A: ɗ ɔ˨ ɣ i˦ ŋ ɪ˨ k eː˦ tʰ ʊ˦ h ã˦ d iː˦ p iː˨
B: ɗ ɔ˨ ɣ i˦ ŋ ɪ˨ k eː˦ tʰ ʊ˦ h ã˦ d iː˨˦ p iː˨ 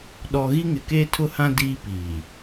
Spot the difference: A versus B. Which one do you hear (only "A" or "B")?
A